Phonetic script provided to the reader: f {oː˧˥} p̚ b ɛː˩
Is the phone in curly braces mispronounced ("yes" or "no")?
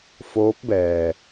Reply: no